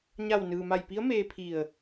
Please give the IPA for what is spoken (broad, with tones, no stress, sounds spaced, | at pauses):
ɲ a˧˩ w n ɯː˩ m a˧˩ j p i˧˥ ə̯ m eː˧ pʰ i˧˩ ə̯